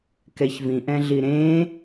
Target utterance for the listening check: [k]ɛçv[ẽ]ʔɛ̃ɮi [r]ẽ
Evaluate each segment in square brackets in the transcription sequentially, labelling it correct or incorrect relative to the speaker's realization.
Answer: correct, incorrect, incorrect

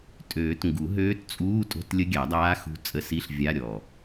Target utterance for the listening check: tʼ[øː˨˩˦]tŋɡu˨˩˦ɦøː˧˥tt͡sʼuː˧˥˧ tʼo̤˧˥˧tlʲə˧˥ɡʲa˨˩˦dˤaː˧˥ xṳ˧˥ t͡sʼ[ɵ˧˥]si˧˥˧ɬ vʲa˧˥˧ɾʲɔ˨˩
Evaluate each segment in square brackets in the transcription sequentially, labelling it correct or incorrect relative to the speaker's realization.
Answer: correct, incorrect

